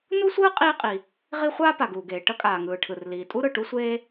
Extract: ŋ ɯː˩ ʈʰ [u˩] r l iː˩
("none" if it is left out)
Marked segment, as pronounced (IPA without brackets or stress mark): ɯ˩